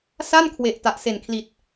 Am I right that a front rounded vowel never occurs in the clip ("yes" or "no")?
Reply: yes